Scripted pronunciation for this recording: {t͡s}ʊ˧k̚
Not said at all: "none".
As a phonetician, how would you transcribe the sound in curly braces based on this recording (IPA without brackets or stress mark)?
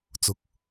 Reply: t͡s